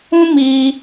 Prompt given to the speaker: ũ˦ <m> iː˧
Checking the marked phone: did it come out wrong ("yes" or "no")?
no